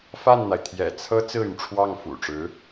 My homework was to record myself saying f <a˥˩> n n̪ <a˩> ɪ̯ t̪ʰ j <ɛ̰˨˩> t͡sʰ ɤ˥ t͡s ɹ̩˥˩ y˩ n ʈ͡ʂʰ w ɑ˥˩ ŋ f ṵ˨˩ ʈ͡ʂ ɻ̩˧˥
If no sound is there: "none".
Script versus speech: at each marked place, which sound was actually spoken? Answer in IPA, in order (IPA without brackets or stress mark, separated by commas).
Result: a˥˩, a˩, ɛ̰˨˩